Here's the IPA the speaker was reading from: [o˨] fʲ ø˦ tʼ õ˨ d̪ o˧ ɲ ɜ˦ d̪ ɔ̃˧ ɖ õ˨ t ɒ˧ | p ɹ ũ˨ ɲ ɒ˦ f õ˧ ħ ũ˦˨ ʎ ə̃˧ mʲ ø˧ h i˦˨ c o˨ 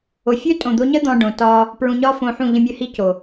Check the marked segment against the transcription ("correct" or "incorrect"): correct